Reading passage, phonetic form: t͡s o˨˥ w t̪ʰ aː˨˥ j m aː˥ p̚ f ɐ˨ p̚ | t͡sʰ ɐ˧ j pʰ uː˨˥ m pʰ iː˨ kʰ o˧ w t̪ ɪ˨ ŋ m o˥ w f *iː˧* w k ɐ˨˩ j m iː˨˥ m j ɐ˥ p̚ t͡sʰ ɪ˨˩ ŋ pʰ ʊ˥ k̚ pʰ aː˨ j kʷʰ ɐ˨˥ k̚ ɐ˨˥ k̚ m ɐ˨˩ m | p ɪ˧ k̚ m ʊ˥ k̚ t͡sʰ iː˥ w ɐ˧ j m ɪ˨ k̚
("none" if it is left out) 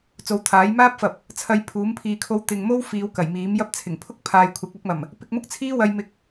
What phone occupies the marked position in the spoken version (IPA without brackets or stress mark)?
iː˨˧